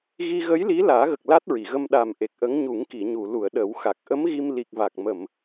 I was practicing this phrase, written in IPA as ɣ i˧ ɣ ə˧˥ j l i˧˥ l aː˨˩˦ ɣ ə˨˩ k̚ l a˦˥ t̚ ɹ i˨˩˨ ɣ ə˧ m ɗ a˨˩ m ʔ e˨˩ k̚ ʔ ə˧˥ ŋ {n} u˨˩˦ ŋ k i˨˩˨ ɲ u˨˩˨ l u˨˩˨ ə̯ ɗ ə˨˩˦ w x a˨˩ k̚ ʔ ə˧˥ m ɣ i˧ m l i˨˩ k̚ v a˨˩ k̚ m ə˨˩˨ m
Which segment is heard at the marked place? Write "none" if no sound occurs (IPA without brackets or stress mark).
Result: ɲ